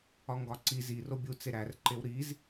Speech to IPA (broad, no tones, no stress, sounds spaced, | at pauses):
ɒ ŋ ɡ ɒ ǀ i z i r o bʲ u t͡s e ɾ æ r ǃ e w ɾ i z